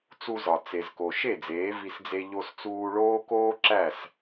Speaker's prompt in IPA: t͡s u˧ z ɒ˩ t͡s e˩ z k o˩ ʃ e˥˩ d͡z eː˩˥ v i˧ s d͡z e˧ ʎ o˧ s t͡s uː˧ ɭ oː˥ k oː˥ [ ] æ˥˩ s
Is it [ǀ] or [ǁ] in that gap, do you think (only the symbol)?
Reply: ǁ